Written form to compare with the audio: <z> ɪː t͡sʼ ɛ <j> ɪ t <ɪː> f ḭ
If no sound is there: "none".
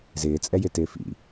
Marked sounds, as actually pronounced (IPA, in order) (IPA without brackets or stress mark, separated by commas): z, j, ɪː